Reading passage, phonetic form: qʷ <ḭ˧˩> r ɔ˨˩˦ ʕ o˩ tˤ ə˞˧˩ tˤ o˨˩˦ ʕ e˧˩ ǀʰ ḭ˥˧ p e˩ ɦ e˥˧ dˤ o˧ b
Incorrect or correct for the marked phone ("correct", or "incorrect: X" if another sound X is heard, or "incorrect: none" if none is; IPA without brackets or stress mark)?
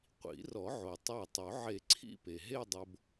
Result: incorrect: ḭ˨˩˦